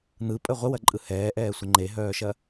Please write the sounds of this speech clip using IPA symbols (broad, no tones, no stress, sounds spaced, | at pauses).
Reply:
n̪ ɯ pʼ ə ʁʷ ə w ɐ ǃʼ ɯ h ɛː ʔ ɛː sʷ ə ŋ͡ǃ e ɦ œː ʃ ɐ